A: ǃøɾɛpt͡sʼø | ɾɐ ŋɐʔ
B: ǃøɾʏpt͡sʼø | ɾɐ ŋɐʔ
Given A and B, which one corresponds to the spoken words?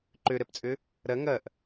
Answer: A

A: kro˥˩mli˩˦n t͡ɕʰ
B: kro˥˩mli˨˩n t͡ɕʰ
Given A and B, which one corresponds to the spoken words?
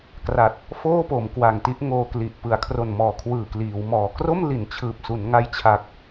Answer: A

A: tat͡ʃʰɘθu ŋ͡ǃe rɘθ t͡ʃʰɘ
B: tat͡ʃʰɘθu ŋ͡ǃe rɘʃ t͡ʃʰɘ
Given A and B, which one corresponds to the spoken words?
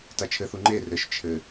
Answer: B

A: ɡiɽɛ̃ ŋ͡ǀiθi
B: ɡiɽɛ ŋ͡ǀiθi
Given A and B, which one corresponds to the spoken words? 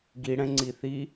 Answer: A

